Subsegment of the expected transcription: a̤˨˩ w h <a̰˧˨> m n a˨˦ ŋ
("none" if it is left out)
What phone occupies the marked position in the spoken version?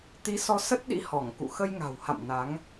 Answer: a̰˧˨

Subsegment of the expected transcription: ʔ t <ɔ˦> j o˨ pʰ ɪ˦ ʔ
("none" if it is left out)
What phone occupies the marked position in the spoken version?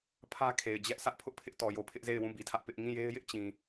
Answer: ɔ˨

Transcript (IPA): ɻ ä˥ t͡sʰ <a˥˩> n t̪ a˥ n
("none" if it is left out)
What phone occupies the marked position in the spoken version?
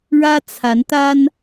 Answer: a˧˥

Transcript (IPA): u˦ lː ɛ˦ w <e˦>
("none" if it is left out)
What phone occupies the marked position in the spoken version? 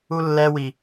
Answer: i˦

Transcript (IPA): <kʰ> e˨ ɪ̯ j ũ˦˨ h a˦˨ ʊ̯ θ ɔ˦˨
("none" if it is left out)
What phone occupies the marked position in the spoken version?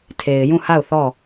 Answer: tʰ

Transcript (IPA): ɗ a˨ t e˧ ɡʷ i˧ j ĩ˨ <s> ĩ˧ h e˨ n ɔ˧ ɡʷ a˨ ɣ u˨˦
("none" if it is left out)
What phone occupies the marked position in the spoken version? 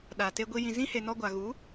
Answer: z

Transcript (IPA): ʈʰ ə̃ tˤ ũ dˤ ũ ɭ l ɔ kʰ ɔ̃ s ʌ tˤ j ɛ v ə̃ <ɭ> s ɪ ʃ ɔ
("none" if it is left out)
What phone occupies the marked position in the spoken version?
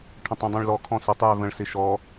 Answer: ɭ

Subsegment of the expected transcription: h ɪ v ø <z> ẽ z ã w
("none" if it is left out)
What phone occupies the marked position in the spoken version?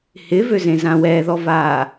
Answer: z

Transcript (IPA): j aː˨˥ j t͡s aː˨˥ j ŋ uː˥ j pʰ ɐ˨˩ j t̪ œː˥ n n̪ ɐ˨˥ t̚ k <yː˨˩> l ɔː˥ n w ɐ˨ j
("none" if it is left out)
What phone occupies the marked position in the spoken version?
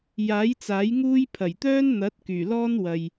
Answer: yː˨˩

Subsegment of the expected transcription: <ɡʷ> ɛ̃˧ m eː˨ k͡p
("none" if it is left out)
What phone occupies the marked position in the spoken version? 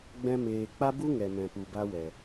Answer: ɡ͡b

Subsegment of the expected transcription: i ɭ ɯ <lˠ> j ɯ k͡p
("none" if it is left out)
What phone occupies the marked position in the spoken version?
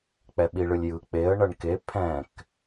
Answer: lʲ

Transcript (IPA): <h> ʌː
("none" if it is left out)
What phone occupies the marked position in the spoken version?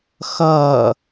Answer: x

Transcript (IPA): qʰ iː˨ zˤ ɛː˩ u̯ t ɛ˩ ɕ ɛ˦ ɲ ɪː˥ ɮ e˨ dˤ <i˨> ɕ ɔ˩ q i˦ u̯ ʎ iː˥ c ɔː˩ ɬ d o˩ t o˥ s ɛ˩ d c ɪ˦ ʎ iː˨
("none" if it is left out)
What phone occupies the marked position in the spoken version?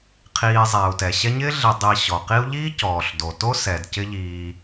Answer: i˨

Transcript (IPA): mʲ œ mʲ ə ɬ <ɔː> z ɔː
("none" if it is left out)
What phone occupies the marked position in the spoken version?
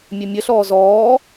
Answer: ɔː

